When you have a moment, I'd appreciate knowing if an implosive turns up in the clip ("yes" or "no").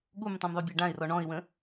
yes